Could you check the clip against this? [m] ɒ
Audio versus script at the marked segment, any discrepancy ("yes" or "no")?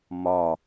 no